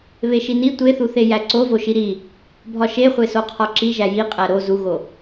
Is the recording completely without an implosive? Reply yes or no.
yes